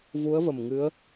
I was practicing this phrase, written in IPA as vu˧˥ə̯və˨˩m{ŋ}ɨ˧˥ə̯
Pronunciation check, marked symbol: correct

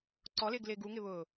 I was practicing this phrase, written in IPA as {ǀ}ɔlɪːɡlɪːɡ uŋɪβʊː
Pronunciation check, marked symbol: correct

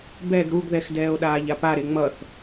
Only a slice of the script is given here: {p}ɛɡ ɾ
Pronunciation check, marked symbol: incorrect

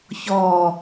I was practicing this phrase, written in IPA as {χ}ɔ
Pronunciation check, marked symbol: incorrect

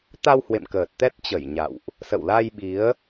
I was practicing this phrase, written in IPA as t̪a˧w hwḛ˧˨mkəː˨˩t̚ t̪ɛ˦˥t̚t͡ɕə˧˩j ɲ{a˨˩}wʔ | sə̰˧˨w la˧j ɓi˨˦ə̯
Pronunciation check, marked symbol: incorrect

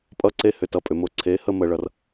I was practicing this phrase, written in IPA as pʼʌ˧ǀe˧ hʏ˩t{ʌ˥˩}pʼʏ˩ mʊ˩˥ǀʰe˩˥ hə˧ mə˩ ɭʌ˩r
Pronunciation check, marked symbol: correct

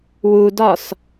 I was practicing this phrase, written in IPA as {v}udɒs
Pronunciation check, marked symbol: incorrect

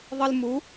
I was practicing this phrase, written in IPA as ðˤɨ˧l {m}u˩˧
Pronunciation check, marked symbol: correct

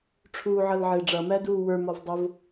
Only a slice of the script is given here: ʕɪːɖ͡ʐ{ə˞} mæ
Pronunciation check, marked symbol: incorrect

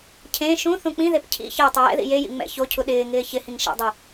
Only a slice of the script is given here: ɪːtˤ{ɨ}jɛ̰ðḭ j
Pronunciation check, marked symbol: incorrect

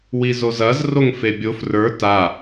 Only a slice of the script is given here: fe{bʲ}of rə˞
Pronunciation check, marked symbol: correct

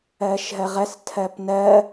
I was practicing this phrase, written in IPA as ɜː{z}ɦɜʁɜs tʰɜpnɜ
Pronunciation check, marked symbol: incorrect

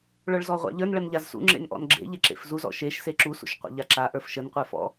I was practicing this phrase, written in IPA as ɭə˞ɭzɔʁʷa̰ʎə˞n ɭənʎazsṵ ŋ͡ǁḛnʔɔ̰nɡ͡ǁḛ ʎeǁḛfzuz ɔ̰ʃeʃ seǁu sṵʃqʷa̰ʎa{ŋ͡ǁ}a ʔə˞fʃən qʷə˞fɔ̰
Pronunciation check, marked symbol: incorrect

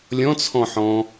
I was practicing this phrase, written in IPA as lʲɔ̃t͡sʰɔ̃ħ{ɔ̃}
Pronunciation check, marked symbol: correct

